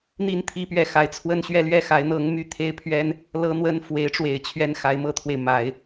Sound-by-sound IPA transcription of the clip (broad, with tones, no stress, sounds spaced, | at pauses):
n̪ i˥˩ n t̪ʰ i˥ p ɥ ɛ˥˩ x a˧˥ ɪ̯ t͡sʰ w ə˥˧ n ɕ ɥ ɛ˥˧ l ɥ ɛ˥˩ x a˧˥ ɪ̯ n̪ ɤ˧˥ ŋ m y˥˩ t̪ʰ e˥ ɪ̯ pʰ ɥ ɛ˥ n | l ɤ˥ n̪ w ə˥ n f w e˧˥ ɪ̯ ʈ͡ʂ w e˨˩ ɪ̯ t͡ɕʰ ɥ ɛ˥ n x a˧˥ ɪ̯ m ɤ˥ t̪ʰ w e˨ ɪ̯ m a˨˩˦ ɪ̯